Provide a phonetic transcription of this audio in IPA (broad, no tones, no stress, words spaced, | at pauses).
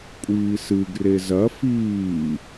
kʷʼiːsɨɡ rezɐ fiː